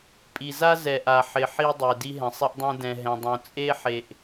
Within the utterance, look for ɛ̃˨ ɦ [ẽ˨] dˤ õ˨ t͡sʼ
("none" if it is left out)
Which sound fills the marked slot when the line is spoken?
ɛ̃˨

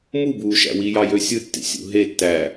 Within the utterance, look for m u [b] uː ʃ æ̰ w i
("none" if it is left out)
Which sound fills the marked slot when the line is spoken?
b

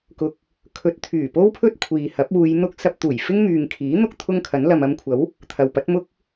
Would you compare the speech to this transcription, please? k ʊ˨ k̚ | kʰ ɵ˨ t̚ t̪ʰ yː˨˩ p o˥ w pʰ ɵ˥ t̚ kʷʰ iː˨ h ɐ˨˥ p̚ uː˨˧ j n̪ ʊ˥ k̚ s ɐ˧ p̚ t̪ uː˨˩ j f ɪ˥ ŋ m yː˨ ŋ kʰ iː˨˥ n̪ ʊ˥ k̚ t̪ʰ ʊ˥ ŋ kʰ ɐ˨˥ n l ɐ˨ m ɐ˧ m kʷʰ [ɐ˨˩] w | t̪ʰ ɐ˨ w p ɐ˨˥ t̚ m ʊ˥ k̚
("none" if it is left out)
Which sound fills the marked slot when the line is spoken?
ɐ˨˥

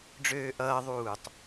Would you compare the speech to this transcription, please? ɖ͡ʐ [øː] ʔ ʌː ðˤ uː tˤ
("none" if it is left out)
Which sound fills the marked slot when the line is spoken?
øː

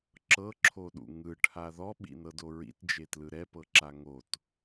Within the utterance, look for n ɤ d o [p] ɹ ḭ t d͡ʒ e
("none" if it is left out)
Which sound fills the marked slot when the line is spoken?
none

